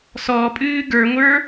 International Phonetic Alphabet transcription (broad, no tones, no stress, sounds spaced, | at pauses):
s ɔ pʼ ɨː ɡ ə˞ ŋʷ ə˞